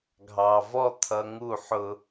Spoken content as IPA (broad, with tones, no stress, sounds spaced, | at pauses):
ɡʱ ɑ˨ v ɔ˦ t̪ʰ ʌ˧ ŋ u˦˨ ħ ʊ˧